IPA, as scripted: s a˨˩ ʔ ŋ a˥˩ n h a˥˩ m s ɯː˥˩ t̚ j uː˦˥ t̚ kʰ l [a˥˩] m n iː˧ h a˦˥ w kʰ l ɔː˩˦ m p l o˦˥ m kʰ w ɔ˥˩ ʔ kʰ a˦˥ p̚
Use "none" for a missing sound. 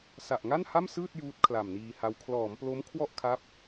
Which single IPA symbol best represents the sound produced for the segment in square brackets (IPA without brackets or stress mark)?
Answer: a˨˩